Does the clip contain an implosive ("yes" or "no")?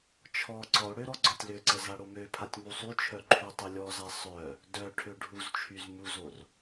no